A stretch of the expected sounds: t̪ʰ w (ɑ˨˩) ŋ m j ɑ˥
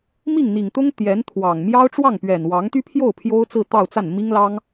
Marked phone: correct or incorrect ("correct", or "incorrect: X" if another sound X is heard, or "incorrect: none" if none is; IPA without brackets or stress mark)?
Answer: correct